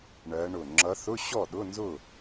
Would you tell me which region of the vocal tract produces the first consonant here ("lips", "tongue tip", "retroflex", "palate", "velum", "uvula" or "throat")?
retroflex